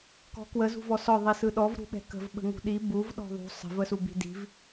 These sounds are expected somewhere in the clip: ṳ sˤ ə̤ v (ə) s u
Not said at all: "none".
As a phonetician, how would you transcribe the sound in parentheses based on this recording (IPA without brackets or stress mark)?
ə